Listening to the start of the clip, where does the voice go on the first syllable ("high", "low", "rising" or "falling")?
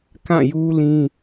falling